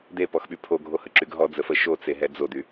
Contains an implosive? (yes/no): yes